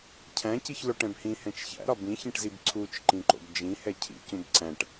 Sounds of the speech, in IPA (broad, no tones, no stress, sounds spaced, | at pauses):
cʰ æ̃ c i ç l o ʈ ɛ̃ b h ĩ h ɛ̃ t͡ʃ ç æ̰ ɾ ɒ b ĩ ç ĩ ʈ z i b ǀʰ u t͡ʃ ǃ ĩ ǃ o̰ b d͡ʒ ĩ h ɛ cʰ ḭ c ũ b ǀ æ̃ ʈ